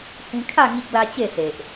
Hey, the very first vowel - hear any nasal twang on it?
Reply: yes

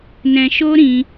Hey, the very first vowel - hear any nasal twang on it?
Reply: yes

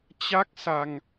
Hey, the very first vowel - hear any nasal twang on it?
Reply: no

